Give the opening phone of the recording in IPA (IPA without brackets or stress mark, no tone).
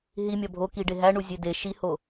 ɦ